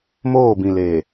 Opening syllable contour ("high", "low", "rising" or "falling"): falling